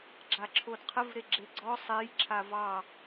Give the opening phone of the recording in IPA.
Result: ɡ͡ǁ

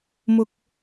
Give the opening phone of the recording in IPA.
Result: m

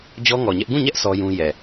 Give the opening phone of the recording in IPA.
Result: d͡ʑ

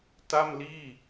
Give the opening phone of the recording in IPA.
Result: t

